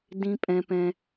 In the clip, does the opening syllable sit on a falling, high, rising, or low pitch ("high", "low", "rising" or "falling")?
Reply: high